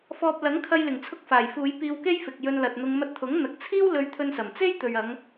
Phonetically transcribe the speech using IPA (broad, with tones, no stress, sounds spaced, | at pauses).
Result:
f ɔː˨ p̚ l ɐ˨˥ ŋ kʰ ɐ˧ j l ɪ˨˩ ŋ t͡sʰ ʊ˧ k̚ f aː˨˩ j f uː˨˧ j p iː˧ w k e˥ j f ɪ˨ k̚ j ɵ˧ n l ɐ˨ t̚ n̪ ʊ˧ ŋ m ɐ˧ t̚ t̪ʰ ʊ˨˥ ŋ n̪ ɐ˨ k̚ t͡sʰ iː˥ w l ɵ˧ ɥ t̪ʰ ɵ˧ n s ɐ˨˩ m t͡s e˥ j t̪ ɵ˨ ɥ ɐ˨˧ ŋ